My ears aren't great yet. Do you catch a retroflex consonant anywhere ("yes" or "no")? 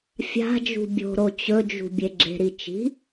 no